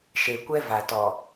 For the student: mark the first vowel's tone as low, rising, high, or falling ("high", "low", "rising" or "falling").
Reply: low